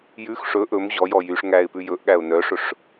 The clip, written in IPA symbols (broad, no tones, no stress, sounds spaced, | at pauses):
j ʉ x ʂ ɵ ʔ ɵ m ʑ ɔ j ɔ j y ʂ ŋ æ ɪ̯ p ʉ j ɵ ʔ ɠ æ ʊ̯ n œ ʂ ɵ ʂ